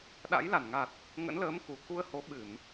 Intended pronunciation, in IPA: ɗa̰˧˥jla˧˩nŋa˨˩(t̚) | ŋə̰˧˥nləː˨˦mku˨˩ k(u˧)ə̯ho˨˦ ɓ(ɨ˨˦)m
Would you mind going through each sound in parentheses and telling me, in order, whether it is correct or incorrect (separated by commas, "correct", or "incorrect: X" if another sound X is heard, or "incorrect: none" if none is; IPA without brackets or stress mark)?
correct, correct, incorrect: ɨ˧˩˨